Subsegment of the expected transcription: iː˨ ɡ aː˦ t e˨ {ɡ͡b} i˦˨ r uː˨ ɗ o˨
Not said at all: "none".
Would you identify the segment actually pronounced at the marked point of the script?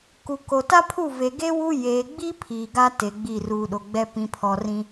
ɡ͡b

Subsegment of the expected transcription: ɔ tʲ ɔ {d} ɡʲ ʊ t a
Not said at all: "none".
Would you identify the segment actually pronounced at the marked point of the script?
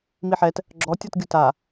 t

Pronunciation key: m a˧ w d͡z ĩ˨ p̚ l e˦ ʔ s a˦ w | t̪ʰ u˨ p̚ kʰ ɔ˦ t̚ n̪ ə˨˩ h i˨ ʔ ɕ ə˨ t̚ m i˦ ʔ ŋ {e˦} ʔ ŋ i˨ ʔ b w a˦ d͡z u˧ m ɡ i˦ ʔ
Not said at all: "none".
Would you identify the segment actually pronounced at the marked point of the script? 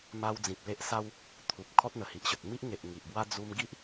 e˨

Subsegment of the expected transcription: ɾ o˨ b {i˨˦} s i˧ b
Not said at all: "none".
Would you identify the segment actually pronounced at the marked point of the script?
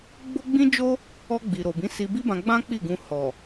ĩ˨˦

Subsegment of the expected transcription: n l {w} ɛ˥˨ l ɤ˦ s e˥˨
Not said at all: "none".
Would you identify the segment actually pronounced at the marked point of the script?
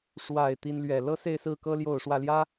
ɥ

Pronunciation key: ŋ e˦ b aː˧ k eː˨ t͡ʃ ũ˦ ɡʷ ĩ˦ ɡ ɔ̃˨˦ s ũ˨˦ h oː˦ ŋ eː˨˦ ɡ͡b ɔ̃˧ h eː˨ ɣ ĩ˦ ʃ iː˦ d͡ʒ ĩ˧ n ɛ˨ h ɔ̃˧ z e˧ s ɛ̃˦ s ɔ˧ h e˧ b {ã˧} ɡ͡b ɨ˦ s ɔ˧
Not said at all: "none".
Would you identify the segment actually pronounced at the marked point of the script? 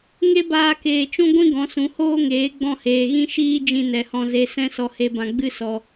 ã˧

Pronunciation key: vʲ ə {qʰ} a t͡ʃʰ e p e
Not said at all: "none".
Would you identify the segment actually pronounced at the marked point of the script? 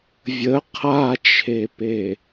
qʰ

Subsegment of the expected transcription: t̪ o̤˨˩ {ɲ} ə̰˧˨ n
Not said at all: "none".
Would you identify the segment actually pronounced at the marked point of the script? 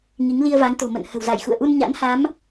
m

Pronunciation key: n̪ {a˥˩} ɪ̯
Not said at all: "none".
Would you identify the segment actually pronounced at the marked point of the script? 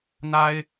a˥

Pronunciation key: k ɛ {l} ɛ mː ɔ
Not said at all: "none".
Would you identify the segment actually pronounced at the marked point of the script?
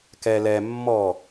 l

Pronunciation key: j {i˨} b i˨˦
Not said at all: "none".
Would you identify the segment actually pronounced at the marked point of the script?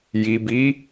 i˨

